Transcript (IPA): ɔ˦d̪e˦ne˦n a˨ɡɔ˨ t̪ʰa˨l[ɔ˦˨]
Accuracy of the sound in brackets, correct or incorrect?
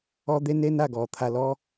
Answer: incorrect: ɔ˦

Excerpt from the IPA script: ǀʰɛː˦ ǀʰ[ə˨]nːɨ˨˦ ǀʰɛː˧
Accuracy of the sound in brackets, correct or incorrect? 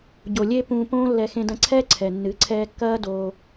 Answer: incorrect: ɛ˨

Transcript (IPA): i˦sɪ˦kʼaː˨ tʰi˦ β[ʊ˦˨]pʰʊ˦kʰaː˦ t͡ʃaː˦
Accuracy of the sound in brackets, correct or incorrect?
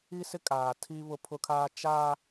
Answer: incorrect: ʊ˦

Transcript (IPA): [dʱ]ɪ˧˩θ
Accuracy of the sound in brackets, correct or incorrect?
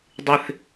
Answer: incorrect: dˤ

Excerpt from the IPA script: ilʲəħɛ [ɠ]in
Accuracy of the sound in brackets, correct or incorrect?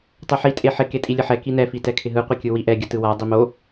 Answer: incorrect: k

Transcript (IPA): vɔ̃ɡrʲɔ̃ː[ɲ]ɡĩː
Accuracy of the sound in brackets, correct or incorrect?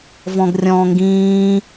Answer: incorrect: ŋ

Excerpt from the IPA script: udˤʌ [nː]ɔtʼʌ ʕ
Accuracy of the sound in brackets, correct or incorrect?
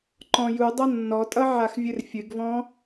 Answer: correct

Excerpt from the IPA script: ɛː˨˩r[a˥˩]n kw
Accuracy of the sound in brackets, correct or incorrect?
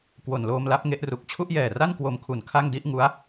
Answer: correct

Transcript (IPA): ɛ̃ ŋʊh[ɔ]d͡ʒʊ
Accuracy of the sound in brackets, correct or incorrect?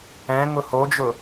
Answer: incorrect: o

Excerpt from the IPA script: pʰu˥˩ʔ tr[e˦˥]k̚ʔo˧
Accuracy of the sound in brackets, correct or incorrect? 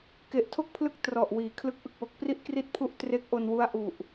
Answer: correct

